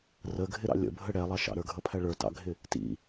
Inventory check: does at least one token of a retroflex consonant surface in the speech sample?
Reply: yes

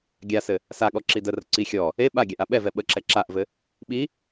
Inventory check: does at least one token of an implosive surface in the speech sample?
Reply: yes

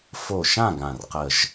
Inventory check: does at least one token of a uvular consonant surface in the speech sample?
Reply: yes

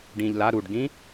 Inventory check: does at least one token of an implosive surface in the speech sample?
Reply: no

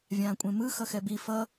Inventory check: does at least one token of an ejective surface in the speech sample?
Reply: yes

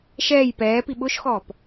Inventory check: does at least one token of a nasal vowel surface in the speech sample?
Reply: no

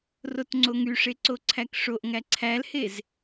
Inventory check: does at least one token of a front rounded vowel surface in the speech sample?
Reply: yes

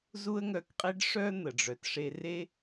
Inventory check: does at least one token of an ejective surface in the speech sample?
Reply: yes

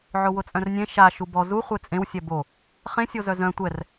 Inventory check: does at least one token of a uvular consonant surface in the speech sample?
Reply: yes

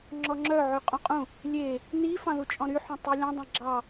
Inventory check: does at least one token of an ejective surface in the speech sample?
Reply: yes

